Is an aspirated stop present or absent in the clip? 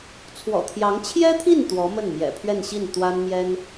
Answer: present